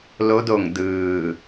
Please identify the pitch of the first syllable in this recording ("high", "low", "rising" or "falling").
rising